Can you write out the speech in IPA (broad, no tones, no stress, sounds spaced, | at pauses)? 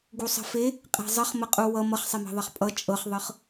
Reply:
ɡ u sˤ ə̤ f e | qʼ e̤ zˤ ə χ m ə qʼ u w ʌ m ʌ χ sˤ e m e̤ ðˤ ʌ χ pʼ ʌ t͡ʃʼ ɤ χ ðˤ ɤ χ